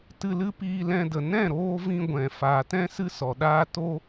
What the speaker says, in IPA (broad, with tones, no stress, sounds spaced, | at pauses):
t ɨ˧ l ɨ˦ p iː˧ l ɛ̃˧ d ə˨ n ɛ̃˦˨ ɾ oː˧ v ĩ˧ ɡʷ ɛ̃˨ f aː˨ t ɛ̃˦ s ɨ˦ s ɔ˨ ɗ aː˦ t o˦